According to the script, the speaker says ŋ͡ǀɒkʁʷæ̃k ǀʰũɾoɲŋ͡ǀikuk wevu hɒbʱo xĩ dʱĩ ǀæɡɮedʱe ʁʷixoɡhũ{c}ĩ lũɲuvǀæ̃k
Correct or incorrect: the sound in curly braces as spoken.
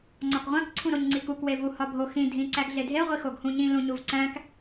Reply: incorrect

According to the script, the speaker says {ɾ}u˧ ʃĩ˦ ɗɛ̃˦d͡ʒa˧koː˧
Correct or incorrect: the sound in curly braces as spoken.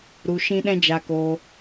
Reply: correct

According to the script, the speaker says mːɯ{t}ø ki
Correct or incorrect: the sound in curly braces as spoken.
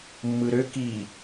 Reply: incorrect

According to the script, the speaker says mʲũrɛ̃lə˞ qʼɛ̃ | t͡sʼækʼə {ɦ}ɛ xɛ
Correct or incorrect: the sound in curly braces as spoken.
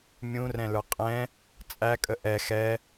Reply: incorrect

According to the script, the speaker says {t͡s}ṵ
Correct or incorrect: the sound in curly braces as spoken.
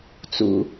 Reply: correct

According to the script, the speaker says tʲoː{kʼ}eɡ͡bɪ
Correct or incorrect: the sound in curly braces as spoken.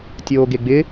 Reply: incorrect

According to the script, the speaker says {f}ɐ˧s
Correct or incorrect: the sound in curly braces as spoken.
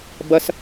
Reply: incorrect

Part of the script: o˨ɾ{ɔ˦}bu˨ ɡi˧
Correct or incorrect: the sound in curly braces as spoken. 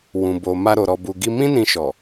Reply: incorrect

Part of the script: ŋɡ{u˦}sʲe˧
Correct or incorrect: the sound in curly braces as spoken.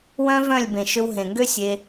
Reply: incorrect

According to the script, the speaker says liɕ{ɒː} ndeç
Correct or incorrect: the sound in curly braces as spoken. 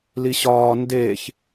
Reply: correct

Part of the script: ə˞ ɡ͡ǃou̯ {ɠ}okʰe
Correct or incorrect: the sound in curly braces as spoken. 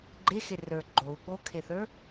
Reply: correct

